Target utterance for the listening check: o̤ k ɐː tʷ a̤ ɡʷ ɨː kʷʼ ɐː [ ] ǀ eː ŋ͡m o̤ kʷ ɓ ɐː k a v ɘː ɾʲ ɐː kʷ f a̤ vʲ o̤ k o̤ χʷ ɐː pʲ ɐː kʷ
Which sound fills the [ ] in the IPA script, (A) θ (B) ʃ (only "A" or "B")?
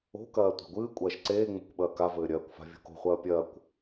B